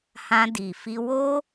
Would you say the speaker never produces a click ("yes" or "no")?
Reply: yes